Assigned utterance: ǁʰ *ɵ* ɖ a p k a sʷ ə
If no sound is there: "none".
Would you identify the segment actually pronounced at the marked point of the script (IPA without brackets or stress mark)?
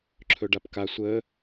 ɵ